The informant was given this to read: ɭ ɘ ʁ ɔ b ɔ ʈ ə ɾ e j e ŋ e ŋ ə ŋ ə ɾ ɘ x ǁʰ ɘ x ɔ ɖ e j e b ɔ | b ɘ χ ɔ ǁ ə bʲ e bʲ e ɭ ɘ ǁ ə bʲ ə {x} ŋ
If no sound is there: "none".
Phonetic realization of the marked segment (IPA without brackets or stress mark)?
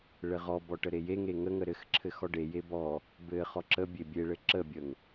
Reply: none